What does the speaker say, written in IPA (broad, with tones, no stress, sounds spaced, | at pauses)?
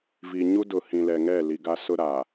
v iː˨ ɲ u˦ d ʊ˨ h ĩ˨ l ɛ˨ ŋ ɛ˦˨ l i˨ ɡ a˦ s ʊ˦ ɾ aː˨